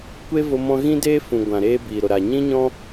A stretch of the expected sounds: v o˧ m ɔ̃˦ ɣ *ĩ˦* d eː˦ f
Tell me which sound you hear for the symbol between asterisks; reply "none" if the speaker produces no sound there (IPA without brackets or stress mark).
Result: ĩ˦